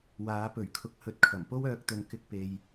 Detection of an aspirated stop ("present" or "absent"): present